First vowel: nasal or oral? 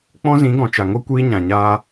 nasal